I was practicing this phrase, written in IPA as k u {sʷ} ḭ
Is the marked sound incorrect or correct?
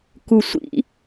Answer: correct